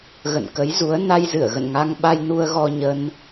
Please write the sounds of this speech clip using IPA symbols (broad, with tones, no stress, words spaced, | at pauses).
ɣə̰˧˨nkə˨˦jzu˨˦ə̯ na˧jzɨ˧˩ə̯ɣə̰˧˨n ŋa˧ŋɓa˧jnu˧ə̯ ɣɔ˧ɲə˧n